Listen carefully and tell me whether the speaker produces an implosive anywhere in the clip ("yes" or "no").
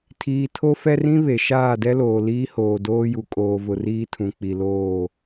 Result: no